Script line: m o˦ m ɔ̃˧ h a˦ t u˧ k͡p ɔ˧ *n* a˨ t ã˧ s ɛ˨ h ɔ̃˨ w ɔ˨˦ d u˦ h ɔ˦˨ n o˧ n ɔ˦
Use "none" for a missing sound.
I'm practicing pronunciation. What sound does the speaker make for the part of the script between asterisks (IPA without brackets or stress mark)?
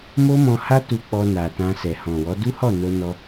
n